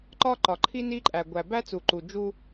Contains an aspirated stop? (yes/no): yes